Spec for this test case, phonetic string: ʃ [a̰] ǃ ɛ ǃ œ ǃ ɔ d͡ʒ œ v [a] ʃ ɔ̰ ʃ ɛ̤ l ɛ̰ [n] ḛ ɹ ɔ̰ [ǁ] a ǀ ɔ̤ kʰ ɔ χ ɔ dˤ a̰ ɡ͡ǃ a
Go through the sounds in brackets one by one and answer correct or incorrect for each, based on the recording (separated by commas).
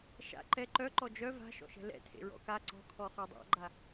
correct, incorrect, incorrect, incorrect